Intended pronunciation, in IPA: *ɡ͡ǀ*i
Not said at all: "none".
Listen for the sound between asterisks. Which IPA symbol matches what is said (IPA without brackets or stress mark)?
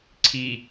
ǀʰ